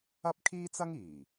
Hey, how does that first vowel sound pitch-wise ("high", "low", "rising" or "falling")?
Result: high